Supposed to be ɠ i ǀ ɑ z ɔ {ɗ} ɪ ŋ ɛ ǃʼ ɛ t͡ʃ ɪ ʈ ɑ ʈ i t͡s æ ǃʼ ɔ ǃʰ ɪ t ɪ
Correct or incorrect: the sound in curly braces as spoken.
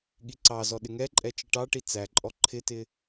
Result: correct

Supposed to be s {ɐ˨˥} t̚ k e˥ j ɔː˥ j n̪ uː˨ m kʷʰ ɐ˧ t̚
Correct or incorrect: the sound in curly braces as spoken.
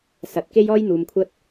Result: correct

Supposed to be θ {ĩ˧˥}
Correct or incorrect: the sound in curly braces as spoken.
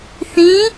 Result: correct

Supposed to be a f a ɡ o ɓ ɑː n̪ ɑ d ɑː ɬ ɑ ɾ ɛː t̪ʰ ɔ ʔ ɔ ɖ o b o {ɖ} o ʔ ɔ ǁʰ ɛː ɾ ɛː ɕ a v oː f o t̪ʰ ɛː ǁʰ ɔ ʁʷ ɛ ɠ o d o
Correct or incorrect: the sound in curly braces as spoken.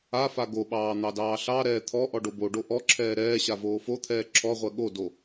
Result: correct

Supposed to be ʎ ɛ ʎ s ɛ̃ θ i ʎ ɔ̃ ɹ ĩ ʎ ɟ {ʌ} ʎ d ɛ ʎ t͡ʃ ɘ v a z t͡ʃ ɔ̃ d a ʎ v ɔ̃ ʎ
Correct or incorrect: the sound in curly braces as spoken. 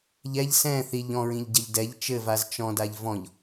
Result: correct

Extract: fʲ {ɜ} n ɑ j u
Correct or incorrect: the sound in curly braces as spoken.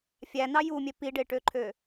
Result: incorrect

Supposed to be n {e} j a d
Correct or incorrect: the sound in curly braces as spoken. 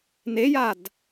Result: correct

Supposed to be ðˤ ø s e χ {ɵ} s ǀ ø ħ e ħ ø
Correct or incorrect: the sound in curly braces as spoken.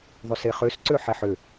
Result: incorrect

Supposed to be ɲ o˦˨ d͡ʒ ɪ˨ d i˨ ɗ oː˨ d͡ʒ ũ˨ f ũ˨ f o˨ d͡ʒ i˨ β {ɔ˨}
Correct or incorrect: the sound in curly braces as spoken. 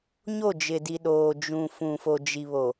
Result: incorrect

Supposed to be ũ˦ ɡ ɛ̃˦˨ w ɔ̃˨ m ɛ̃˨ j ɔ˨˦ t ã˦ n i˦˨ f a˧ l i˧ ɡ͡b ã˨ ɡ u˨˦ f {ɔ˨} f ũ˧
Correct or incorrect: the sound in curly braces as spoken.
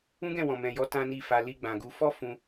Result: incorrect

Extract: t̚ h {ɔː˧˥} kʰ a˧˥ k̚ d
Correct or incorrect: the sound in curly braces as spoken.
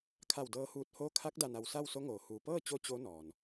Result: incorrect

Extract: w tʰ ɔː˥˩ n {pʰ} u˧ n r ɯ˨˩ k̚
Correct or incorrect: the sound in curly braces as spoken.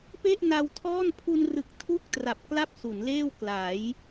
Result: correct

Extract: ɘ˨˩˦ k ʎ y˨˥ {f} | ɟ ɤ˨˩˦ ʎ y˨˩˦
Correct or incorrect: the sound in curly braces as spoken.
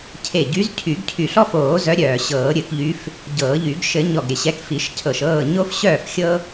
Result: correct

